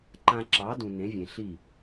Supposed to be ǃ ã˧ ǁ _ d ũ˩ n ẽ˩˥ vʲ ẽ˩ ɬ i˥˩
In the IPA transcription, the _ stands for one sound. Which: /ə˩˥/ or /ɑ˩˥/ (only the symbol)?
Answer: ɑ˩˥